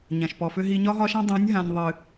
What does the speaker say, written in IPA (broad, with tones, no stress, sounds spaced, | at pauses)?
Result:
ɲ ã˨ ʃ p ɔ˨ f ʏ˦ ɦ i˧ ɲ ɒ˦ ɦ ɒ˦ ʃ ã˦ dˤ ɛ̃˨˦ nʲ ɦ ã˨ nʲ ðˤ ɨ˨